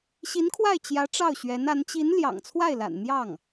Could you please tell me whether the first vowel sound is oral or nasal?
oral